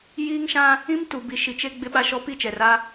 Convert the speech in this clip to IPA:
j iː˦ ŋ ʃ ã˦ | ĩ˦ m t u˨ b i˨ ʃ i˨ t͡ʃ e˦ ɡ͡b ɪ˦ ɓ a˦ ʃ ɔ˦ p i˦ t͡ʃ ɛ˨ r a˦

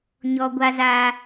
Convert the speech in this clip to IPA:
ɲ ɔ˦ ɡʷ a˦ z aː˦

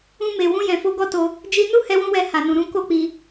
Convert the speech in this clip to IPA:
ũ˧ m e˨ w ũ˧ j ɛ̃˨ f o˧ ɡ ɔ˦ t o˧ | d͡ʒ i˧ n u˦ h ɛ˧ w ũ˧ w ɛ˧ h a˨ n ũ˨ ɾ ũ˧ k o˦ k͡p i˧

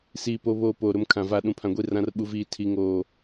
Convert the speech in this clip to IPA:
s iː˨ p o˨ β oː˨ p oː˨ ɾ ʊ˦ m kʰ ã˨ v aː˨ ɗ ũ˨ pʰ ã˨ ɡʷ i˦˨ r ã˦ r ɓ u˦ v iː˦ tʰ i˦ ŋ oː˦

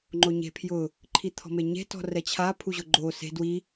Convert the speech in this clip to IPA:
ŋ͡ǃ o ɲ e̤ pʰ j ʊ | ǃʰ i t̪ʰ ɔ̤ m e ɲ e̤ t ɔ̤ r ɛ t͡ɕʰ a pʰ u ʑ ʊ ɡ͡ǃ o s e̤ d w i

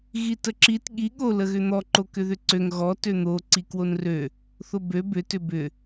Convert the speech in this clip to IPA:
ɣ i t ə ǁ i t ɠ i ɠ o l ə ɣ ʏ n̪ ɔ ǃ o k ʏ ð ʏ ǀ ø ŋ ɣ ɔ t ø n̪ o ǀ i k w o n r ø | θ o b ø b ʏ t ʏ b ʏ

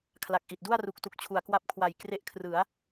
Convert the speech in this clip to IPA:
kʰ l a˨˩ k̚ ʔ i˨˩ t̚ d u˥˩ a̯ r u˨˩ k̚ t u˨˩ k̚ t͡ɕʰ u˩˦ a̯ k w a˦˥ p̚ kʰ w a˨˩ j k r e˦˥ ʔ kʰ r ɯ˩˦ a̯

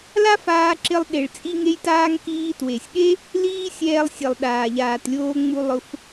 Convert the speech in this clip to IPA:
l a˦ f aː˧ ǁ ɪ˧ lˠ ɗ e˨ ɭ t͡sʼ i˧ ŋ e˧ j t aː˧ ŋ k iː˧ t w e˨ sʲ ɠ e˦ | l iː˦ sʲ ɛː˧ lˠ sʲ e˨ lˠ ɗ aː˨ ʎ aː˨ t lʲ oː˧ ŋ͡m u˧ lˠ ʊ˧ f

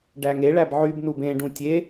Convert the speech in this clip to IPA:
ɖ æ ŋ e ɭ æ b ʕ y b n u b ẽ ɖ ũ tʲ e

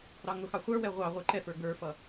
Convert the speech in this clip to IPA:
ɾ ɑ ŋ ʊ x ɑ χʷ ə˞ w ɛ ʁʷ ɑ ʁʷ ə˞ ǃ ɛ f ə˞ ɡ ə˞ f ʌ

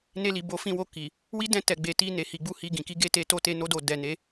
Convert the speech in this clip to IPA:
n e˧ l i˨ b o˨˦ f ĩ˧ w o˧ k i˨ | w i˦ d ɛ̃˦˨ t ɛ˨ ɡ͡b e˨ t i˧ n e˨ h i˨˦ ɡ͡b u˦ h i˧ ɡ ĩ˨ k i˨˦ ɡ e˦˨ t e˧ t o˧ t e˧ n o˧ d o˨ d ɛ˨ n e˨˦

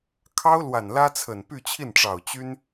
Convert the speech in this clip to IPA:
kʰ ɑ˥ ʊ̯ l w a˨˩ n l ä˥ t͡sʰ ə˨˩ n p y˥˧ t͡ɕʰ i˥˩ n ʈ͡ʂ ɑ˨˩ ʊ̯ t͡ɕ y˥ n

